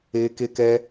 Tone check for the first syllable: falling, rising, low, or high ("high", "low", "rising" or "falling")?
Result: high